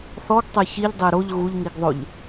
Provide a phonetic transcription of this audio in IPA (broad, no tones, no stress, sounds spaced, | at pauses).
θ ɔ ɡ tˤ ɛ ç i ʎ dˤ e ɾ o ʎ ɣ u ʎ ŋ i ɡ ðˤ o ʎ